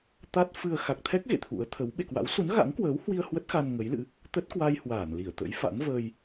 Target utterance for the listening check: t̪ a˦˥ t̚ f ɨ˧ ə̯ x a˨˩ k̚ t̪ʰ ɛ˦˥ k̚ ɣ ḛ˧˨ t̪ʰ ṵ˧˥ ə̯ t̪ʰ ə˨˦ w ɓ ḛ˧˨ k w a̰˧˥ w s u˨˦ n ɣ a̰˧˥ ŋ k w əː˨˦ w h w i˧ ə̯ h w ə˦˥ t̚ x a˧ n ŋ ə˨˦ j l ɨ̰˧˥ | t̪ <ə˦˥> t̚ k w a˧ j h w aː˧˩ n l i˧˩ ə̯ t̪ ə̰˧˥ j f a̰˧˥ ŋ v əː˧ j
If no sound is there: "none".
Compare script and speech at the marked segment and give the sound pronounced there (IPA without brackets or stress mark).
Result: ə˦˥